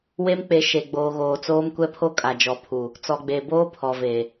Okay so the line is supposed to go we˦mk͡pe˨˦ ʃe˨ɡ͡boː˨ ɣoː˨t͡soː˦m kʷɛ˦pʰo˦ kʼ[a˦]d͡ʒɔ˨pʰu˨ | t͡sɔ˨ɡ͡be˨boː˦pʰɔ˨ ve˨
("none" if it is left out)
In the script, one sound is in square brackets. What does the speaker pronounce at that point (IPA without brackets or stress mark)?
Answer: a˨